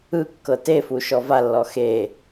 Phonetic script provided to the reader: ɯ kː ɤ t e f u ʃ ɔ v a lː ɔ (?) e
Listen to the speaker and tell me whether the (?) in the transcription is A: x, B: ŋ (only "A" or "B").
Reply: A